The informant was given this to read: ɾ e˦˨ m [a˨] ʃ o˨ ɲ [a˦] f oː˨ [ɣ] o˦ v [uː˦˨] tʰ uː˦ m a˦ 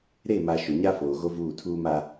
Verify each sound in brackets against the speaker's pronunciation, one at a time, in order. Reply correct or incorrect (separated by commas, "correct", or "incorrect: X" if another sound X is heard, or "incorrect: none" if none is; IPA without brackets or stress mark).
correct, correct, correct, correct